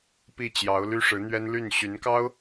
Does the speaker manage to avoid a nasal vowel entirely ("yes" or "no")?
yes